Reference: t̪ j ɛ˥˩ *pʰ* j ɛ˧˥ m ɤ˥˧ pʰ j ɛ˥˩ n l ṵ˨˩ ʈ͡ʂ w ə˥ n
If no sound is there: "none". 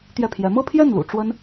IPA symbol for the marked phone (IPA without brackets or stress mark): pʰ